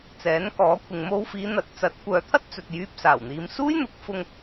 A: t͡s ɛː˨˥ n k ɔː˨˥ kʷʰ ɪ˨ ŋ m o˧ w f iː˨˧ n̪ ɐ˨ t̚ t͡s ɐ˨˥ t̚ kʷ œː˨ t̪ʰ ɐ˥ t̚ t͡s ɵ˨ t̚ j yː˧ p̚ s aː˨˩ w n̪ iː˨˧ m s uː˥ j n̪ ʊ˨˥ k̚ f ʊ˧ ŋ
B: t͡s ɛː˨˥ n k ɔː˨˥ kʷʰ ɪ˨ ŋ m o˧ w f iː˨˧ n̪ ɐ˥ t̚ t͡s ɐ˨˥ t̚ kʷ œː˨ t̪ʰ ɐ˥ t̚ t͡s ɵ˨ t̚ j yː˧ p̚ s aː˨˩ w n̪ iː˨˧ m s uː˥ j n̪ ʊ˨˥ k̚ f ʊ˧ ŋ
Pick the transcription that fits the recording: A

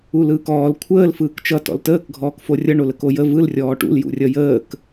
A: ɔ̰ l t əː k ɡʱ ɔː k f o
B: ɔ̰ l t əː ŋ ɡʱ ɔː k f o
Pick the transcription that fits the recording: A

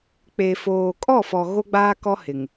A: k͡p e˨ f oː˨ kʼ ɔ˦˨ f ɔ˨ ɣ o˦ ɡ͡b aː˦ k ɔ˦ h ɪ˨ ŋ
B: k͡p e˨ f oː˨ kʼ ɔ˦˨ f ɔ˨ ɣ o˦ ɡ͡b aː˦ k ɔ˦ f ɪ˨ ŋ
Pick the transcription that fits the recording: A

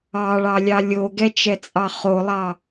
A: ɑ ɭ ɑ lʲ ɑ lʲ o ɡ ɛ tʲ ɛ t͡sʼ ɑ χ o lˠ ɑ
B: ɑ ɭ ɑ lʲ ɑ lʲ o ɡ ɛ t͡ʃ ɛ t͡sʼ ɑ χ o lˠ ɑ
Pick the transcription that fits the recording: B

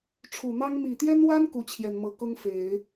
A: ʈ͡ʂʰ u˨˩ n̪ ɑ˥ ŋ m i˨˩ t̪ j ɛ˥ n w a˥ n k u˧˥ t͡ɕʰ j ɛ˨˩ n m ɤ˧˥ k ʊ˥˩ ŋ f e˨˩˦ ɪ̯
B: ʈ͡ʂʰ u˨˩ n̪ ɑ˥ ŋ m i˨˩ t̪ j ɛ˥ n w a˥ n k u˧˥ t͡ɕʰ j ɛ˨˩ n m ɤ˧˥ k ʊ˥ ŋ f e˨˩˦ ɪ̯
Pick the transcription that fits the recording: B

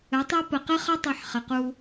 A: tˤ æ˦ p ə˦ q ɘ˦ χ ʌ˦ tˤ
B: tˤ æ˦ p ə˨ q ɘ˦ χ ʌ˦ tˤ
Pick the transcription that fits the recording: B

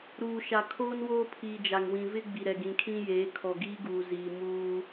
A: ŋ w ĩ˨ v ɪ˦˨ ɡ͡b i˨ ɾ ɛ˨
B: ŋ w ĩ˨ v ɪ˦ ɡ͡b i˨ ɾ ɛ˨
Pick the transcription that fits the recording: B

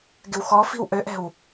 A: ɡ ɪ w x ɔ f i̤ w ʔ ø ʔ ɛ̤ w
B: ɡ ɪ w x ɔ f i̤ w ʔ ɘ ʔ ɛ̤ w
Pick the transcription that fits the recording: A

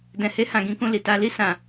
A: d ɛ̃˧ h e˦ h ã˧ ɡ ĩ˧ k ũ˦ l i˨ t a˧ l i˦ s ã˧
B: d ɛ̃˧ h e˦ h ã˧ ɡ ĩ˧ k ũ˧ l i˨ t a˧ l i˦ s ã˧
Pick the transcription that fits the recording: B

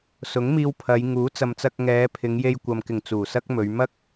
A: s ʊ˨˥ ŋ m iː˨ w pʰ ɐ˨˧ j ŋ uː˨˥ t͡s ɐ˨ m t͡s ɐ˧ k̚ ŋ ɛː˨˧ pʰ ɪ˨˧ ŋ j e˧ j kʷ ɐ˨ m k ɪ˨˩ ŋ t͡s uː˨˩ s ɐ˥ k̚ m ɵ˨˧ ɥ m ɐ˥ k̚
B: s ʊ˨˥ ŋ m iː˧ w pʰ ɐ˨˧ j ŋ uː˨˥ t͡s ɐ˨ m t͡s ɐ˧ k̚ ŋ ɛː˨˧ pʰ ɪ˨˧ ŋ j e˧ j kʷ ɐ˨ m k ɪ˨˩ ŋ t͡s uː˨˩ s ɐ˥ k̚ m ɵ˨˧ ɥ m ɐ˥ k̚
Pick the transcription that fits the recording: B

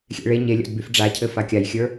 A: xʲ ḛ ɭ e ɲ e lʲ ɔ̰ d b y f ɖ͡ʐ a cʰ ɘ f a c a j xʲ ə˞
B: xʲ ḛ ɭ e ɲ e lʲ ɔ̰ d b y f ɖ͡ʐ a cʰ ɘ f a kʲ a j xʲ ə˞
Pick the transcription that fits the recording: B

